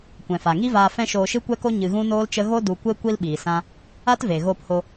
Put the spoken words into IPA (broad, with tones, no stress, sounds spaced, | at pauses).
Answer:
kʷ ɛ̃˨ f a˨ ŋ i˦ v aː˧ f ɛ̃˦ ʃ oː˧ ʃ ɨ˦ kʷ ɛ˦ k o˦ ɲ ɨ˧ ɣ ũ˦ n oː˦ l t͡ʃ ə˦ ɣ o˦ d u˧ kʷ e˦ kʷ i˦ l ɓ iː˨ s ã˦ | a˦ t v e˨ ɣ oː˧ p h o˧